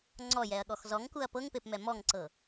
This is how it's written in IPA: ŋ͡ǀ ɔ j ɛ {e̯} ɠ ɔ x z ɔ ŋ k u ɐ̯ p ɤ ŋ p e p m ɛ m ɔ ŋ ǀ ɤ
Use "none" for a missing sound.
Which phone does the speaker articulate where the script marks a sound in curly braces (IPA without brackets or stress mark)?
ɐ̯